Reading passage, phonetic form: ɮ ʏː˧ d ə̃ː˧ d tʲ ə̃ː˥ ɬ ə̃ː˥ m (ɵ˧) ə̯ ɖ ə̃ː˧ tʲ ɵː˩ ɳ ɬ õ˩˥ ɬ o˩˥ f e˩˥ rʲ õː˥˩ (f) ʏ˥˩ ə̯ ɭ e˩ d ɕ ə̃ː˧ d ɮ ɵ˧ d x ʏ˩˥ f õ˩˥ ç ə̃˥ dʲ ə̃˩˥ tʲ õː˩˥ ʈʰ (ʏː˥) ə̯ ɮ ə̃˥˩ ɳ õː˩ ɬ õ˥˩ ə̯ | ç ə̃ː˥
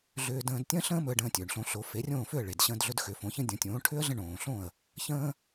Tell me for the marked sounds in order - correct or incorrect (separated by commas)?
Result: correct, correct, incorrect